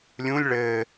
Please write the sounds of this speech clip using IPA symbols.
lʲũlʲ ɭɘː

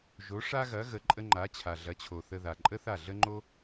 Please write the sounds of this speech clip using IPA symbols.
ʒo˩˥ʂa˥ɣɐ˩˥ ɣə˩˥ǃʼə˥ ŋ͡ǃa˩˥t͡ɕʰa˩ ɮɐ˩˥t͡ɕʰo˩ θə˧ða˩ ǃʼə˥θa˥˩ɮə˥ŋ͡ǃo˥

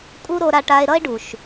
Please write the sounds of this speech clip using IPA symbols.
kʼu˦ ɾo˦ɾa˦ʈa˦e̯ ɾʌ˦e̯ɖu˨ʃ

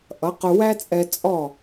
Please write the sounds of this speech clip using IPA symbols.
ʔʌ˩˥qʊ˧ wæ˥t͡sʼɛ˧ t͡sʼɔ˥˩

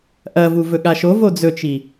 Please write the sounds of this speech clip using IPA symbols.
ʔɐvu vɵɠaʃovo d͡zɵt͡ʃi

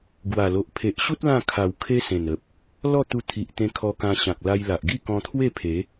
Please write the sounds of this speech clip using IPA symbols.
ɡwa˨˩lo˨ʔ pʰe˨ʔɕu˦t̚ lã˥˧ kʰa˨˩w kʰe˦sẽ˨˩nə˨p̚ | lɔ˥˧t̪u˧ t̪ʰi˨ʔt̪ẽ˧ kʰɔ˧kã˧ɕã˨k̚ la˧jla˨ʔɡi˥˧ kɔ̃˧t̪ʰwe˥˧pʰe˨˦

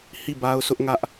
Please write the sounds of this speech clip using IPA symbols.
hi˦˨ba˦ʊ̯sʰʊ˦ʔŋä˦ʔ

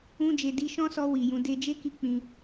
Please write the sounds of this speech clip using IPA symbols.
ũ˧d͡ʒe˨di˧ ʃɔ̃˦sɔ˧ wi˨jũ˨˦ de˧d͡ʒe˦ki˧ k͡pĩ˧

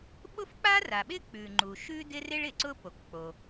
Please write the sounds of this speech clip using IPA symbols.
ɓʊ˥fk͡pa˥ra˩ɓɪ˥ k͡pʉ˩ŋ͡ǃu˩ ʃʉ˥ dɪ˥rɪ˥ɭɪ˩ǀʊ˥ po˩kk͡po˩

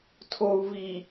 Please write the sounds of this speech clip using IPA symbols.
tʰou̯ vi

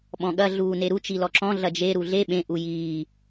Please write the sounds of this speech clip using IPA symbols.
ɓɔ̃ɠɐ ɮuːneɾu t͡ʃilɔǁɔ̃ ɮɐd͡ʒe ɾuɮe ɓẽ ʔujiː

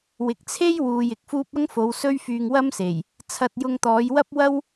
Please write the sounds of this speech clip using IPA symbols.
wɪ˨k̚t͡sʰe˥j wuː˧jɪ˨k̚fuː˥p̚ ɐ˥ŋfo˨˧w sɵ˥ɥfyː˧ŋ wɐ˥mse˨˩j | t͡sʰɐ˧t̚jʊ˧ŋt̪ɔː˨˧j wɐ˥p̚wɐ˥w

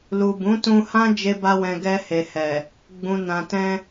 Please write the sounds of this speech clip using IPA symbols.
lu˨bũ˨˦tũ˧hã˦ d͡ʒe˦ba˦wɛ̃˧ ɡɛ˧he˨hɛ˨ | ɡ͡bũ˨ nã˨tɛ̃˧

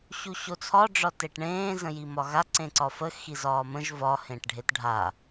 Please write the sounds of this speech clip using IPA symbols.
ɕuɕot͡sʰɒ ɖ͡ʐɒteʈɳẽː zə̃jimɒɣa ǀẽǀɒfə xizɒːmə̃ʒ vɒ hẽʈɖʱetɖʱa

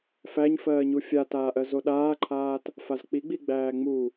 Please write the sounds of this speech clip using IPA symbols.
fæɲfɜːɲu fʲataːʔɜ zoɗaːǃʰaːt | fazk͡piɡ͡bi ɡ͡bæːŋ͡mu

